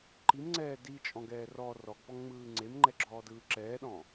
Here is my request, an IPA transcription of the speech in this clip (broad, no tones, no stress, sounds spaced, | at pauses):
ǃ i m ŋ͡ǀ ɛː d i t͡ʃʼ ɔ̃ ɡ ɛː r ɔ r ɔ ɡ p ɔ ŋ ŋ͡m ɯː ŋ͡ǀ e m ŋ͡ǃ ɛ ɡ͡ǁ ɔː d ɯː ǁ ɛː ɗ ɔ̃